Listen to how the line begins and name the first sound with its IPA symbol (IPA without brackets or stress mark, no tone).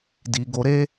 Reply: d